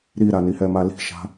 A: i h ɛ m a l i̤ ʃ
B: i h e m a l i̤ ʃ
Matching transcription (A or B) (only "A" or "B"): A